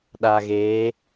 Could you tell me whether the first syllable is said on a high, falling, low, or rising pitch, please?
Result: low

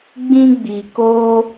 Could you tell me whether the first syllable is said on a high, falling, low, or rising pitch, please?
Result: high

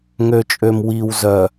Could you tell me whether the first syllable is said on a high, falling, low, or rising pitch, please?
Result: low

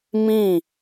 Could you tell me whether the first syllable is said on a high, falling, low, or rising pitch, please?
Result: falling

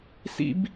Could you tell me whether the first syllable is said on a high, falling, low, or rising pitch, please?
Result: high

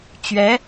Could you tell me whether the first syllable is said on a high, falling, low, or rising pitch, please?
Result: rising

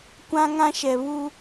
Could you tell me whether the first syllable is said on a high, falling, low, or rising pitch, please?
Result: high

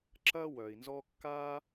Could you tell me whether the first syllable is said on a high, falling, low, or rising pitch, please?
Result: high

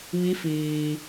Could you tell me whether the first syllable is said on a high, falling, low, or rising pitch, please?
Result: rising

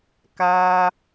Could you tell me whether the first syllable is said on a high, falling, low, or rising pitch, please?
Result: high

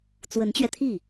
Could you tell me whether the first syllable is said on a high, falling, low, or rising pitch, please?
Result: rising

